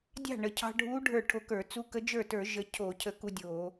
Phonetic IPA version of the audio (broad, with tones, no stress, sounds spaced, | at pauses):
dʲ ɑ̤˥˩ ɳ ə˩ cʰ ɑ̤˧ ɖʱ u˧˥ ɖʱ ə˞˥˩ ʈʰ o˧ k ə˞˧˩˧ t͡s u˧˥ k ə˧˥ d͡ʒ ə˞˥˩ t ə˞˧˩˧ ʒ ə˧ cʰ o˧˩˧ cʰ ə˧ k u˧ dʲ o˧˩˧